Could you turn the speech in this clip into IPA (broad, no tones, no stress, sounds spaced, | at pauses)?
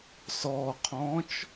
s ɔ qʰ ɔ̃ː t͡ʃ